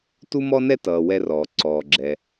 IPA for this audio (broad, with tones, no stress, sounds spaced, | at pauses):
t u˥ m ɔ˥ n ɛ˥ t ʌː˩ w ɛ˧ r ɔː˩ ǀ ɔː˩ ɡ͡ǁ ɛ˩